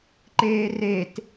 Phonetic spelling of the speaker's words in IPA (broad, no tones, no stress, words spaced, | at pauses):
ǃeːret